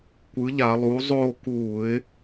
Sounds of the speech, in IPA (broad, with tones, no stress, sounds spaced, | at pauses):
kʷ ɯ˩˥ ʎ a˧˩˧ lˠ uː˩˥ zˤ oː˥˨ k uː˧˩˧ ɪ̯